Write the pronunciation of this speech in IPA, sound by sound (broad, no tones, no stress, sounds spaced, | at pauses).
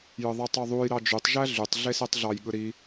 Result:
j ɯ ðˤ e tˤ ø ðˤ u j ɾ ɑ d͡ʒ y tˤ ʒ æ ɮ y tˤ ɮ e s e tˤ ɮ ɑ j ɠ ɯ ɾ i